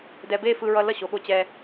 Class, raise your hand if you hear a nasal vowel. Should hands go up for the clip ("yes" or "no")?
no